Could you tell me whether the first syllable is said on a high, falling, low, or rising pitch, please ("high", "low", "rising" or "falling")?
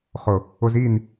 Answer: low